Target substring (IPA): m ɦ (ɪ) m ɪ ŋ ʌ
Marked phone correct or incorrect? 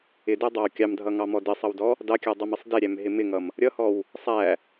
correct